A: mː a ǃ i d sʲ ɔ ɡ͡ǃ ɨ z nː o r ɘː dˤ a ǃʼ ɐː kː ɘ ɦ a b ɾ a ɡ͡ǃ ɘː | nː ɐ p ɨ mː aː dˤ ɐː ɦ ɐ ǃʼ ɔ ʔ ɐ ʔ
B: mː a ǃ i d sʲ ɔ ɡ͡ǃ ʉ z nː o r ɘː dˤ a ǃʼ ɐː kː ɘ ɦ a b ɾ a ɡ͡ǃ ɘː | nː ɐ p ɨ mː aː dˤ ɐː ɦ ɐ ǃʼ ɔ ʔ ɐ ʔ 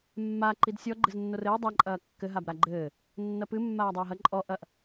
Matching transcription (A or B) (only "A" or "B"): A